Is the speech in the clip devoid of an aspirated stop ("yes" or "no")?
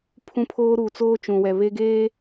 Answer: no